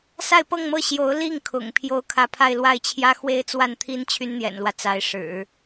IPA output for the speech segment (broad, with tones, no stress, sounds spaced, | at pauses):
s a˥˧ ɪ̯ p ɤ˥˧ ŋ m ɤ˥˩ ɕ j o˧˥ ʊ̯ l i˥˩ ŋ kʰ ʊ̰˨˩ ŋ pʰ j o˥˧ ʊ̯ kʰ ä˥˧ pʰ a˥˧ ɪ̯ l w a˥˩ ɪ̯ t͡ɕʰ j ä˥ x w e˥ ɪ̯ t͡s w a˥˩ n t̪ʰ i˥ n t͡ɕʰ y˥ n n̪ j ɛ̰˨˩ n l w ä˦ t͡s a˧˥ ɪ̯ ʂ ɻ̩˨˩˦